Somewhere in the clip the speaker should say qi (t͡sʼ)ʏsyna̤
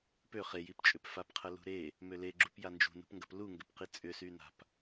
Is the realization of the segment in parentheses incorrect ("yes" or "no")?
no